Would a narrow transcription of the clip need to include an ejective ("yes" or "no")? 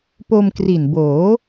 no